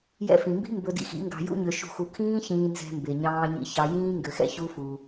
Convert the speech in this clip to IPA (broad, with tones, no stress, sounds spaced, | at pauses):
j ɛ̰˧ f ĩ˨ m b i̤˦ m b ɵ˧ d ḭ˧ x ḭ˨˦ ŋ ɡ ɑ̤˧ j ṵ˦ ɲ ø˧ ʃ ṳ˦˨ x u˧ kʰ ĩː˦ ç ĩː˧ n z ɛ̤˧ m b e˨ ɲ ɑ̃ː˧ ɲ ḭ˧ ç ɑ˧ j ĩː˦ ŋ ɡ ø˧ x ɛ̰˦ ç u˦ f u˧